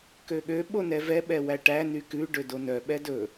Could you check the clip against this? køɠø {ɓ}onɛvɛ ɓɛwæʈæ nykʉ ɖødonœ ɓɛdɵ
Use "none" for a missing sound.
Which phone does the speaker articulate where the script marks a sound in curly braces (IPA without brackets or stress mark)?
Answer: ɓ